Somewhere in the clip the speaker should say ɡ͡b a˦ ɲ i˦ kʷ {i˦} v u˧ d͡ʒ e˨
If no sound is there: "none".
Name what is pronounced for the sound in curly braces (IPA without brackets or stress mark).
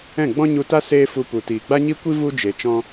i˦